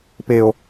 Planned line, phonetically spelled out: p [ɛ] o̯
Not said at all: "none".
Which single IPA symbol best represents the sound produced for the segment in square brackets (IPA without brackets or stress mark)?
e